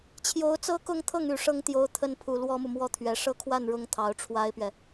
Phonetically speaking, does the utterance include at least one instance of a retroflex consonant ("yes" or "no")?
yes